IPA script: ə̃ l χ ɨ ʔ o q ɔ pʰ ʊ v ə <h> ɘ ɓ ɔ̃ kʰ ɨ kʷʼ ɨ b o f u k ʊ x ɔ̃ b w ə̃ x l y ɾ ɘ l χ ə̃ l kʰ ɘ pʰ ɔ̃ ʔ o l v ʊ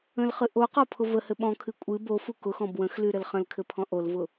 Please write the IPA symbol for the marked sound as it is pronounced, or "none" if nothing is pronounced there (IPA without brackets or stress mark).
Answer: h